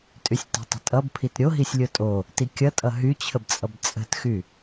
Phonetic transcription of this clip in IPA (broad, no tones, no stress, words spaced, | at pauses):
tʼysʲte̤tˤə̤tʼʌb pʰitɾʲoɦisʲ lʲotʼo | tikʲʌtʼʌ ɦyt͡ɕʰəbt͡sʼʌb t͡sʼə̤txy